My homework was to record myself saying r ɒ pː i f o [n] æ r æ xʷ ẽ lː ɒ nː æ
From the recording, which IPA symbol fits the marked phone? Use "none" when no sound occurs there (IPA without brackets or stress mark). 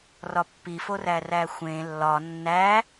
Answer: r